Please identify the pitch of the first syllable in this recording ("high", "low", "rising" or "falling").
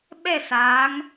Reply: falling